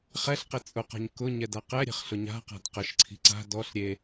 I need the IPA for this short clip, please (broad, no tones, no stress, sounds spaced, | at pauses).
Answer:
χ ɛ ɬ q e t͡sʼ ʊ q a̤ ɲ k ʊ ɲ ɛ d a q ɛ ɾʲ e̤ χ ɬ ʊ ɲ a̤ q a̤ d q ə ʃ ǀʰ i̤ ǀ a̤ d ɔ ɬ ɾʲ e